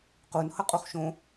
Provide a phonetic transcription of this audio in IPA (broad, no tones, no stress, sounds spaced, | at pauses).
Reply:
q u n h ʌ qʼ u χ ʃ õ